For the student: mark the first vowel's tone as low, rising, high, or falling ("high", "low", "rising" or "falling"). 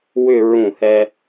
falling